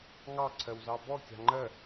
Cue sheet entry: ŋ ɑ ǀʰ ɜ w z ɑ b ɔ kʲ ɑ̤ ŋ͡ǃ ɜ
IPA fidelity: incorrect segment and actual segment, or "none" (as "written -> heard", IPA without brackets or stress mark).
none